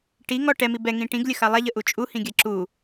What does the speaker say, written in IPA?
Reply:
ʈ i ŋ ɔ ʈ ɛ m i b ɛ ŋ ĩ ʈ ĩ ɡ lʲ ə x a lˠ a ʎ ə ʔ u t͡ʃʼ u h ĩ ɡʲ a ǁ u

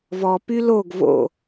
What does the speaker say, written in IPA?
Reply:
v ɔ p y l o ɡ v o̰

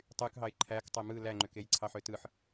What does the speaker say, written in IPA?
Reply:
tˤ y k ɦ ɑ ɪ̯ ǃʰ æ k tˤ e m ɯ l æ ŋ͡ǃ ø k e j ǀʰ ɑ ħ ø t ɯ ħ

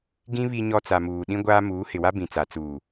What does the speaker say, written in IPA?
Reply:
ɡ ĩ˦ β i˨ ɲ ɔ˨ t͡s a˨ m uː˨ ɗ ĩ˦ ɡʷ aː˦ m uː˨˦ h ɪ˨ w a˦ b ĩ˨ t͡s a˨ t͡s uː˨

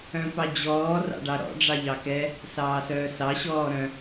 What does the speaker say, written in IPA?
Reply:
œ̃ p ɑ d͡ʑ ɔː r ɑ̰ ɖ ɑ ɾ ɔ̰ ɖ͡ʐ ɑ ʎ ɑ k ɛ | s ɑː s œː s ɑ ɕ ɔː ɾ œ̃

